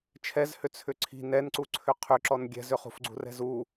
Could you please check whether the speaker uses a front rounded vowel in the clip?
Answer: yes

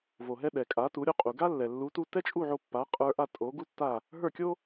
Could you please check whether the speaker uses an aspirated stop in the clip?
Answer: no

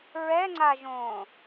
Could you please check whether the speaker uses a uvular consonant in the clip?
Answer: no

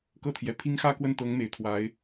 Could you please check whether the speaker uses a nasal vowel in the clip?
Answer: no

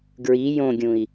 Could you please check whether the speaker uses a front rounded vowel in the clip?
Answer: no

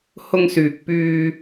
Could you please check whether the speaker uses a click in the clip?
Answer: no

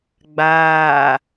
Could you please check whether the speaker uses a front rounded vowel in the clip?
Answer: no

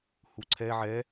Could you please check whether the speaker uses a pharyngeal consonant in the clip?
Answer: yes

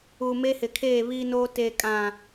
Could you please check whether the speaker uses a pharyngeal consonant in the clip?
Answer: no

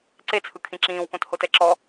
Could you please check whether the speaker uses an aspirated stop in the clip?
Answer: yes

